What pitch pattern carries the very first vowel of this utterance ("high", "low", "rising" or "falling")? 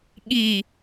falling